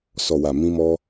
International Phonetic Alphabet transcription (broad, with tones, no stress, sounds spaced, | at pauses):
s ɔ˨ w a˨ m ĩ˧ m ɔ˧